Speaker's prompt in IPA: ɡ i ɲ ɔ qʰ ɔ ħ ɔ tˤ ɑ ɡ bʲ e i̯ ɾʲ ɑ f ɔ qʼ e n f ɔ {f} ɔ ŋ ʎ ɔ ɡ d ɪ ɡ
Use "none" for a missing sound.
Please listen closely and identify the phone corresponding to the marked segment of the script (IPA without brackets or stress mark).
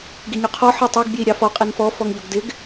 f